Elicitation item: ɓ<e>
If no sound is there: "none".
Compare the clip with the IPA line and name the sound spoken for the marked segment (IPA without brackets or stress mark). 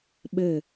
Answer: ɘ